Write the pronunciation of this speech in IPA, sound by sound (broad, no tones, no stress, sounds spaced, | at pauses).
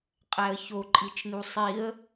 qʼ æ ə̯ ç o ǃʼ i t͡ʃ n u sˤ i ə̯